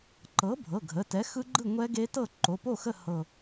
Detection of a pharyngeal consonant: absent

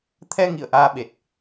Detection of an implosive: present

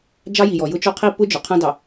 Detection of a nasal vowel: present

